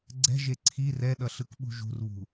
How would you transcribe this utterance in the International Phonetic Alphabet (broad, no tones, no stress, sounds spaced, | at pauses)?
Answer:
ɡ͡ǀ ɛ̤ ʒ e ǀʰ i r ɛ ɗ ʌ ɬ ɯ k ɓ ṳ ʒ ṳ r β ṳ